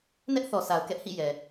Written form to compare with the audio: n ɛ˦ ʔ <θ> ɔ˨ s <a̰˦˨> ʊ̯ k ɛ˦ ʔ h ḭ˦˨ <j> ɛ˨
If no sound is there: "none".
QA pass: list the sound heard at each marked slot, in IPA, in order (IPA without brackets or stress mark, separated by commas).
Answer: θ, a˨, j